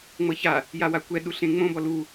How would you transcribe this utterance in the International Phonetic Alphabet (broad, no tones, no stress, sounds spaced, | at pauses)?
ŋ͡m ɤ ç a | j a w a kʷ ɛ ɗ u ɬ ẽ ŋ͡m õ b ɔ l u